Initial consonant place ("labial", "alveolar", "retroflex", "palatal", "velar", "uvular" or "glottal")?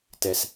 alveolar